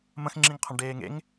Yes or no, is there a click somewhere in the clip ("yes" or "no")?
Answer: yes